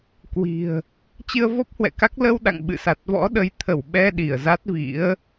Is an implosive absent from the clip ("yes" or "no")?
no